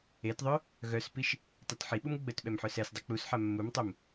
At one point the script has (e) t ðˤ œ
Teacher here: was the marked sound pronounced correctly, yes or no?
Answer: yes